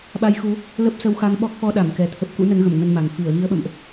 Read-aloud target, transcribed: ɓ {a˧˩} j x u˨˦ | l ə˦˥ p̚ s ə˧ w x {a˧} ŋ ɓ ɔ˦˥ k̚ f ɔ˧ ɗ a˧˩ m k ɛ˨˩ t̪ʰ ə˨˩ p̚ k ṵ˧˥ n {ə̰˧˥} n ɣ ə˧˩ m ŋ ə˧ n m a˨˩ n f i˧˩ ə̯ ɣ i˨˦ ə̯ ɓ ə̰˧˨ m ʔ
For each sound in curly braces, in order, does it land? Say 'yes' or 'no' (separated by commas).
no, yes, no